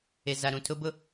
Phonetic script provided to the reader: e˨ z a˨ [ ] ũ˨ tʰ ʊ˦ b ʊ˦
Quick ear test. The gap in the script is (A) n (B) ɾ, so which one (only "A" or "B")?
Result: B